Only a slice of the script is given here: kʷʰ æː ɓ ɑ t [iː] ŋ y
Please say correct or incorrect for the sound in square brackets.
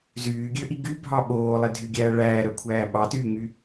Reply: incorrect